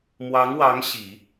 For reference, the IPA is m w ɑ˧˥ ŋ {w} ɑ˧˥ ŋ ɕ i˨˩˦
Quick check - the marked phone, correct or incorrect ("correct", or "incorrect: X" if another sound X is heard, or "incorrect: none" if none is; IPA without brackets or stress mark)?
correct